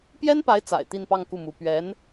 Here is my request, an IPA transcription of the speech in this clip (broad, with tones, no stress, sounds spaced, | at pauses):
p j ɛ˥ n p a˧˥ ɪ̯ t͡s a̰˨˩ ɪ̯ t̪ i˥˧ n p ɑ˥˧ ŋ k u˥˩ m u˧˥ p ɥ ɛ˧˥ n